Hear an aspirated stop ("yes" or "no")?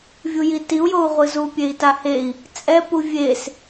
no